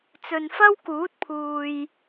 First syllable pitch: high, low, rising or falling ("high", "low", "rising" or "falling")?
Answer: low